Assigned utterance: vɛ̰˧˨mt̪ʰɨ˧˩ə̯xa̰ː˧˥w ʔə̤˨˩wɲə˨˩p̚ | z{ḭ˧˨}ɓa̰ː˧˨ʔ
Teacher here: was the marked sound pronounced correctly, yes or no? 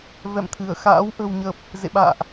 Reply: no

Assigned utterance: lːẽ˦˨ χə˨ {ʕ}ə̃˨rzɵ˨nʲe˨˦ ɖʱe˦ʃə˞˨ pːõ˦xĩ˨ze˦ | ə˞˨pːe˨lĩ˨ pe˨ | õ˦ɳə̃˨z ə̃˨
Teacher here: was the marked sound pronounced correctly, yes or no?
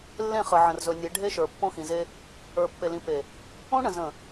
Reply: yes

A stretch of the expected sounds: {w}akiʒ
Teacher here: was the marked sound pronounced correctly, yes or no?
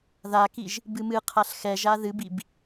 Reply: no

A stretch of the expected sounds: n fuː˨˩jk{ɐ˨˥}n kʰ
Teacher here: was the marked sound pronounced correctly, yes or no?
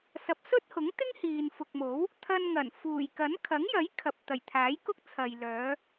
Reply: yes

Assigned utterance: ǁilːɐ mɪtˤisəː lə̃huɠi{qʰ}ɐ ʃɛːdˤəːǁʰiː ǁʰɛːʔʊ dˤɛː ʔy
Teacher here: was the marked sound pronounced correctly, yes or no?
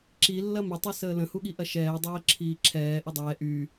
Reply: no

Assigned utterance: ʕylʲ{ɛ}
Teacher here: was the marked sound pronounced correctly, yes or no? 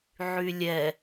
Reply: yes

